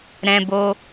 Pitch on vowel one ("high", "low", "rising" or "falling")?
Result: high